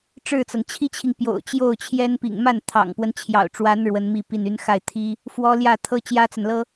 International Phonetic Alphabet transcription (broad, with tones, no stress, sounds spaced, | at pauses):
ʈ͡ʂ ɻ̩˥˩ t͡s ɤ˩ ŋ t͡ɕʰ i˥ t͡ɕʰ i˨ ŋ p j o̰˨˩ ʊ̯ t͡ɕ j o˥˩ ʊ̯ t͡ɕʰ j ɛ˥ n p ḭ˨˩ ŋ m a˥˩ n t̪ʰ ɑ̰˨˩ ŋ p w ə˦ n t͡ɕʰ j ɑ̰˨˩ ʊ̯ ʈ͡ʂ w a˧˥ n ɻ w ə˧˥ n m i˥˧ p i˥˩ n y˧˥ n x a˥˩ ɪ̯ t̪ʰ i˥ | f w ɔ˥ l j ä˥˩ t̪ʰ ɤ˥ t͡ɕ j ä˥ t͡s a˨ n l ɤ˥